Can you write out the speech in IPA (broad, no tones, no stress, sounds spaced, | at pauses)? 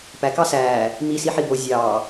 p æ k ɑ s æː | m i s i ħ i b o zʲ ɑː